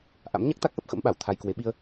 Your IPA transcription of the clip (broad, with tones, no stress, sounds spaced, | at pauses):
ʔ a̰˧˥ m ɲ a˦˥ k̚ t̪ a˦˥ k̚ ʔ ə˦˥ p̚ x ə̰˧˥ m ɓ a˧˩ w t̪ʰ a˧ j k w e˨˦ ɓ i˧ ə̯